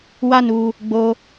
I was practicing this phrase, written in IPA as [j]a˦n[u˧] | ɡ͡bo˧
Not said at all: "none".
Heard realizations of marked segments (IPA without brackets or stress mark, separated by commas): w, u˧